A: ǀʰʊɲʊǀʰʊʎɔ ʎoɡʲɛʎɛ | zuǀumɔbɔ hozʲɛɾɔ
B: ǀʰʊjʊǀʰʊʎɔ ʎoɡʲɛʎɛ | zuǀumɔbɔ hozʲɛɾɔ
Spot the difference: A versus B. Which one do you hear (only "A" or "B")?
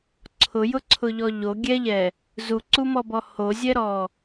B